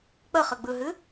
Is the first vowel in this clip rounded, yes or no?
no